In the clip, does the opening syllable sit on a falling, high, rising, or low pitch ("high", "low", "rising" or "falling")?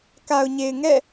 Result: low